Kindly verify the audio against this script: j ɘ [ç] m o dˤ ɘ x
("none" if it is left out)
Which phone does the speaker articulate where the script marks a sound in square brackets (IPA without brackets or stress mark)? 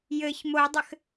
ç